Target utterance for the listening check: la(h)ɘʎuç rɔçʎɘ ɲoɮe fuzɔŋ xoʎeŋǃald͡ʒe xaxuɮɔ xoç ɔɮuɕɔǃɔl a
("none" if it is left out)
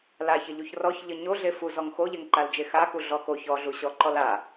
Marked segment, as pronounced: ç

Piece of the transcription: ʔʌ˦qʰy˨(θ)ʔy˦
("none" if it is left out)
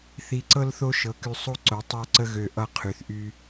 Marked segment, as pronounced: θ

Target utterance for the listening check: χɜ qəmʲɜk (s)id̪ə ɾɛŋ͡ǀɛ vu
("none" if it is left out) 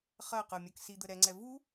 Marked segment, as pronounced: s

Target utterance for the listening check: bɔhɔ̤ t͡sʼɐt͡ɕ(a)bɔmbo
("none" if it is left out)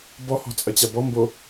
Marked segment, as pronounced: a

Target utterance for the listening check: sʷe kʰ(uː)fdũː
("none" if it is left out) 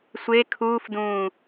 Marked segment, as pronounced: uː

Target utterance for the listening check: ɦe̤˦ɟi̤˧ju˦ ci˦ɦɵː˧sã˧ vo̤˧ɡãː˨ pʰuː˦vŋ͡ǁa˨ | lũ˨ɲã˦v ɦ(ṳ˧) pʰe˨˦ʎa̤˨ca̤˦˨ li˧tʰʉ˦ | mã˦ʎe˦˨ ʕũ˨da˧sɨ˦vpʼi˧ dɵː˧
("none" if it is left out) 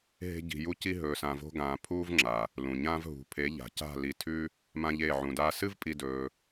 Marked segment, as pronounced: ṳ˧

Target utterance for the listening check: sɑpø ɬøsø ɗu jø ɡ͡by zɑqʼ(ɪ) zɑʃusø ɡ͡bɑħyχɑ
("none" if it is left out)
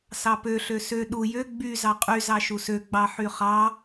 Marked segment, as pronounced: y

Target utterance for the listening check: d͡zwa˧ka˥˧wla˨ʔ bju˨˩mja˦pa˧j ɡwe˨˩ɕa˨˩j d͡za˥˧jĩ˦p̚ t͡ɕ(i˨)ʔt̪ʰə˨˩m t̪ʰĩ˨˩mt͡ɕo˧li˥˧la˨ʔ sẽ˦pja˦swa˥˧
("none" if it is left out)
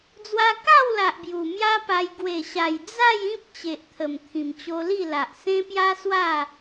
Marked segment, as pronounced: e˨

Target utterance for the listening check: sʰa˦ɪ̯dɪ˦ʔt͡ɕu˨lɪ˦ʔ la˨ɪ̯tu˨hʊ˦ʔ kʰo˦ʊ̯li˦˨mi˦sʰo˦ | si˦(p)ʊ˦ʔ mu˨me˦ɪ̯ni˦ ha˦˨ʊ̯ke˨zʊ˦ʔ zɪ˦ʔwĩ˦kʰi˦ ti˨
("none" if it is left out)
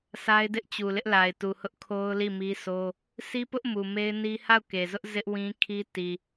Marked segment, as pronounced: p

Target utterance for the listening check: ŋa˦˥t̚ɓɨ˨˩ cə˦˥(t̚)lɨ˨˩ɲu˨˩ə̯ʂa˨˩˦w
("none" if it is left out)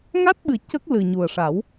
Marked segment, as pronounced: k̚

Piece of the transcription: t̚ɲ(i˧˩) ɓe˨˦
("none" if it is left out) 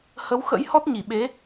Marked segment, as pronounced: i˧˩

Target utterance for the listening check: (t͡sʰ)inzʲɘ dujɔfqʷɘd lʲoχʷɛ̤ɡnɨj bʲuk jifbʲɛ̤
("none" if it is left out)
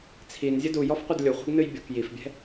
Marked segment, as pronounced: t͡sʰ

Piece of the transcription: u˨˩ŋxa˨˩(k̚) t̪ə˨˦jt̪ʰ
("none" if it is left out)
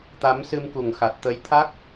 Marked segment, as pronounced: t̚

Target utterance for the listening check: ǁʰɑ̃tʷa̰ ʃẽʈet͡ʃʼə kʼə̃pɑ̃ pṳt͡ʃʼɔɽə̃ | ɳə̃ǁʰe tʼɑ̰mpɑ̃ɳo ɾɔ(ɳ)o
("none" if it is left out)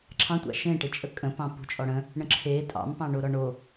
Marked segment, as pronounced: ɳ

